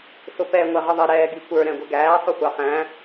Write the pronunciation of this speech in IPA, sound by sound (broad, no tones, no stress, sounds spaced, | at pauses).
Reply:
s ʊ p ɛ ŋʷ ɛ ʁ ə ðˤ ɪ ɾ ɛː ɡ i kʷ ə˞ ɾ ɛ̃ ɡʷ ɪ ɡ æː sˤ ʊ xʷ ɑ χ æ̃